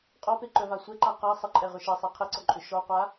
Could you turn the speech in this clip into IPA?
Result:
qʼ ɔ p e ǃ œ v a sʷ ɛ ǃ a q a sˤ ə ǃʼ ɛ ʁ ʏ ʃ e sˤ e qʰ e ǀ ɔ ǃʼ ʏ ʃ ɔ qʷ a

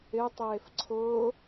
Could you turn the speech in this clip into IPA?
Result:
ɪ tˤ eː f ǀʰ ʊː

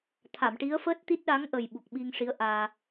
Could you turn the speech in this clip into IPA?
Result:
t̪ʰ a˨˩˨ m ʈ i˧˥ ə̯ f əː˦˥ t̚ t̪ i˦˥ t̚ ɗ a˧˥ ŋ ʔ ə˨˩ j ɓ u˨˩ k̚ ɓ i˧ ŋ ʂ i˧˥ ə̯ ʔ aː˧

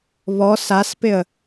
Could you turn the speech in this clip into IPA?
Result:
β ɔ s a s p ɪ ə̯

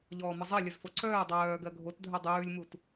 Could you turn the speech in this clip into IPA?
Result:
ʎ ɔː m ə zˤ ɜ lʲ ə z f o ǀ œː dˤ œː ɡ ɜ ɡʱ o t dʱ œ dˤ ʉː lʲ m u t

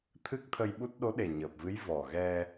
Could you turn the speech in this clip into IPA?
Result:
t̪ʰ ɨ˦˥ k̚ t̪ʰ ə˧ j ɓ u˦˥ t̚ ɗ o˧˥ ɗ e˨˩ ɲ əː˨˩ p̚ v ɨ˧˥ j v ɔ˨˩ ɣ ɛ˧

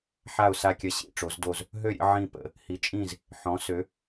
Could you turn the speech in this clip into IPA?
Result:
ħ a˥˨ ʊ̯ s a˥˨ kʲ ɐ˥˨ ɕ ḭ˥˨ ʈ͡ʂ o˨˥ z d o˥˨ z | ɦ ø˥˨ ɾʲ ə̰˨˥ ʕ ĩ˥˨ p ə̰˥˨ | h i˨˥ t͡ʃʼ ĩ˥˨ z | ħ ɔ̃˨˥ s ø˨˥

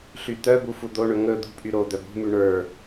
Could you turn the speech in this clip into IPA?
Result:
ɬ y t̪ œ b u f u d̪ o ɳ ɵ ŋ ɵ d̪ ṳ pʼ y ɾ o d̪ œ b ṳ m y ɳ ə˞

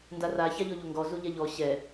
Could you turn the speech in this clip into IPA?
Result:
n d a r a ç a ʎ ɔ ʎ o ŋ ɡ ɔ z u ʎ ɛ ʎ ɔ ɕ ɛ

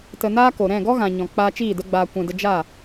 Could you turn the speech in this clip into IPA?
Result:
t ə˨ n aː˧ k o˨ ɾ ɛ̃˦˨ ɡ ɔ˦ ɣ ã˨ ɲ ɔ̃˨ k͡p aː˧ t͡ʃ iː˦˨ d ə˦ ɡ͡b aː˧ kʷ ɛ̃˨ d ə˧ d͡ʒ a˦˨

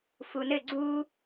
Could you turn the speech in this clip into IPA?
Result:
f u n ɘ ɡ͡ǀ u

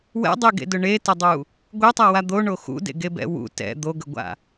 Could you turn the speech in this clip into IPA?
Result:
w ɛ̰ dˤ e ɡ ḛ d ʊ ɳ e t ə dˤ u | ɡʷ e tˤ a w a d̪ o ɳ o x ṵ d ḛ ɡ e b ɛ̰ w ṵ t ɛ̰ d̪ o ɡ ə ɡʷ a̰

